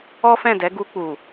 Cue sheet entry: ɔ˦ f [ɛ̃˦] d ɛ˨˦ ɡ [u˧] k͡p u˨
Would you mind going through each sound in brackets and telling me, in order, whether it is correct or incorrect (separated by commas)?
incorrect, correct